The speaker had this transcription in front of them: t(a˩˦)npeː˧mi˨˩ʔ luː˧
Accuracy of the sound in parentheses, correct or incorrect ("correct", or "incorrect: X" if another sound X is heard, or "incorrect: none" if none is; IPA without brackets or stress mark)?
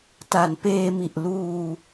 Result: correct